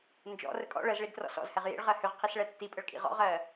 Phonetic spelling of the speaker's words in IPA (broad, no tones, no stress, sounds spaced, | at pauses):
n d͡ʒ ɔ̰ r ə kʼ ɔ̰ ɭ ə z ɭ i d t r ɔ̰ s ɔ̰ z h ɛ ʁ j ḭ ɭ ʁ ɜ h ʏ ʁ qʰ i s ɭ ɛ tː i pʼ ə ɭ kʼ ḭ ʁ ɔ̰ ʁ ɜ